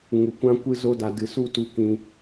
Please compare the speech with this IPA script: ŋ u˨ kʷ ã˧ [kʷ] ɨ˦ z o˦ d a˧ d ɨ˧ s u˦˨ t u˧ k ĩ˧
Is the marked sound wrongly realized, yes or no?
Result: no